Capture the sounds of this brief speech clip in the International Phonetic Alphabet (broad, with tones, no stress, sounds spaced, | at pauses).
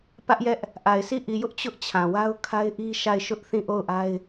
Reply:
p ä˦ ʔ j ɛ˦ ʔ | ʔ a˨ ɪ̯ sʰ i˦˨ ʔ i˨ j ʊ˦ ʔ t͡ɕ ʊ˦ ʔ t͡ɕʰ ã˨ w a˦ ʊ̯ kʰ a˦ ɪ̯ ʔ i˦ ʃ a˦˨ ɪ̯ ʃ ʊ˦ ʔ θ ĩ˦˨ ʔ o˦˨ ʊ̯ ʔ a˦ ɪ̯